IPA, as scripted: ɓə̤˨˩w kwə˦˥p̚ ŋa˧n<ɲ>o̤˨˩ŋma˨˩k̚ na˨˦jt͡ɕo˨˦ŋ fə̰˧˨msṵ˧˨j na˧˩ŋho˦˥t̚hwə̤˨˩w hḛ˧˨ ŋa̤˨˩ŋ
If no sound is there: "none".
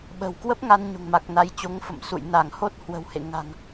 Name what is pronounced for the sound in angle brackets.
ɲ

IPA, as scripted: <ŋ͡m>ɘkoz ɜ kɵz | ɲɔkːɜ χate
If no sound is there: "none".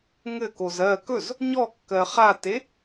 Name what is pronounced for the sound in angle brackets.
ŋ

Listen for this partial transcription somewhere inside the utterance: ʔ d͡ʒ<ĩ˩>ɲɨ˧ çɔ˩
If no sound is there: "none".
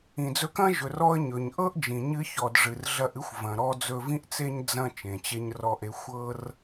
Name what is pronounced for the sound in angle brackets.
ĩ˩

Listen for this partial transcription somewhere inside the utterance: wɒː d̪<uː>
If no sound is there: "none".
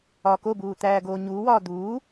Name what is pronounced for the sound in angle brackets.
uː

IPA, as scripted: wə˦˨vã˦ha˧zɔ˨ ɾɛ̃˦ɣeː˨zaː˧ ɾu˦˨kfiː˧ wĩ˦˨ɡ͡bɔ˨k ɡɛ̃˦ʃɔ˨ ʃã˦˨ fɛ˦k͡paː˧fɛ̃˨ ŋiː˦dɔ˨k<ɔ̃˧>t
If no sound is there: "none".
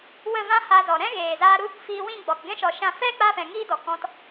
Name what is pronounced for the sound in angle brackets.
ɔ̃˧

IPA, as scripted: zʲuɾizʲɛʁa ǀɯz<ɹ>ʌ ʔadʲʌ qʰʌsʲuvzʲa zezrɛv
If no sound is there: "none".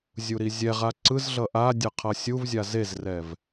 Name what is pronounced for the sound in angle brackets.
ɮ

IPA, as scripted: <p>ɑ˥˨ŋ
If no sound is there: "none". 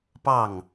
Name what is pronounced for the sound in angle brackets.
p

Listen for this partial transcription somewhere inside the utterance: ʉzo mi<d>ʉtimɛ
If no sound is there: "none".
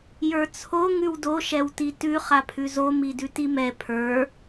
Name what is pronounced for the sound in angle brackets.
d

